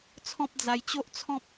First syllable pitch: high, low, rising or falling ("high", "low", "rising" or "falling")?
high